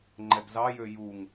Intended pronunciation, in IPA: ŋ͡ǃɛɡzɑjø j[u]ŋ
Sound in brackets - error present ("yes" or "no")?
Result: no